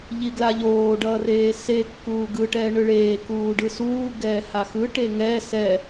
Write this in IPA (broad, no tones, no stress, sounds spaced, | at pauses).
ʎ i ɡ l a ʎ oː ɖ ʌː r eː s e kː uː ɡ ɯ ʈ ɛː ɳ ɯ ɭ eː k uː ɖ ɯ s uː ɡ ɛː h a x ɯ ʈ e ŋ ɛ s ɛ